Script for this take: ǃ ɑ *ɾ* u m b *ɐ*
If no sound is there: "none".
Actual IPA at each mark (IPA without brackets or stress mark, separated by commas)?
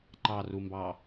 r, ɑ